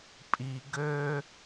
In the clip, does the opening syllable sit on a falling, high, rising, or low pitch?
low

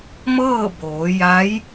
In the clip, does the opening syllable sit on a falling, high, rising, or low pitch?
falling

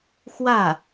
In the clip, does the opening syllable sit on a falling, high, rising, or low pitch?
falling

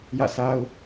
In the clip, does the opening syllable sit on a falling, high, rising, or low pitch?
falling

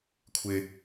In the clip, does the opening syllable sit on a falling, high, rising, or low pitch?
high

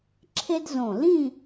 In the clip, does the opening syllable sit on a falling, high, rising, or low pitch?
high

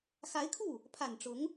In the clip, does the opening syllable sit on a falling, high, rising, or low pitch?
rising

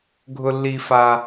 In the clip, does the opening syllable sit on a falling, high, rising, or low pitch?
low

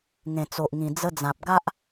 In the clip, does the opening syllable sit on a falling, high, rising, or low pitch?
low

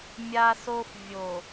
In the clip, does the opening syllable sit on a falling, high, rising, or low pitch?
high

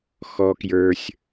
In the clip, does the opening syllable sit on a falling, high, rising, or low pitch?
high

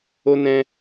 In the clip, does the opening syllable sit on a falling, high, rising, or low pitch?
high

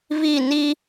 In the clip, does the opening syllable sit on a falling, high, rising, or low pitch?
falling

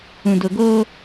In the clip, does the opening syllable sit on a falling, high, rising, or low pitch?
low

